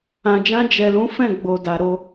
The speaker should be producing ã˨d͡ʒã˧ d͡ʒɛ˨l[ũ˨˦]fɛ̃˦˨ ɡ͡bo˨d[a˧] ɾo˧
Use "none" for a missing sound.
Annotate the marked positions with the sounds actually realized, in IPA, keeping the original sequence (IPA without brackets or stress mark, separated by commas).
ũ˨˦, a˨